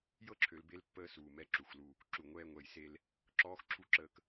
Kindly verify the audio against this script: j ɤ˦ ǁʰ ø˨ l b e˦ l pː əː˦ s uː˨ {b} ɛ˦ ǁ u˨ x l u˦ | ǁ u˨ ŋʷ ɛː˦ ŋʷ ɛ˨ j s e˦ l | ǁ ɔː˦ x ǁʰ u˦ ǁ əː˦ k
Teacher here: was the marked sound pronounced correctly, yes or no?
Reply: no